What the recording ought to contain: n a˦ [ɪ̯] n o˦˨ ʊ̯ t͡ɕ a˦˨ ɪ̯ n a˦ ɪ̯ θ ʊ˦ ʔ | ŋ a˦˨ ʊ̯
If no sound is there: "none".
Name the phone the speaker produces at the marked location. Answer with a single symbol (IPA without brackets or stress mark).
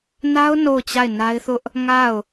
ʊ̯